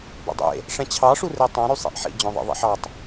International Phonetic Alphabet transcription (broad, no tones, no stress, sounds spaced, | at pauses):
b ḛ dˤ ḛ | ʂ ɛ̃ t͡ɕʰ ɑ ʂ u r e tˤ ɛ̃ ɾ y sˤ ḛ ʔ ħ ḭ d͡ʑ œ̃ ðˤ ḭ ðˤ ḭ ħ ɑ tˤ